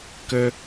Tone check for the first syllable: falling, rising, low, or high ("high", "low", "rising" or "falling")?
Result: high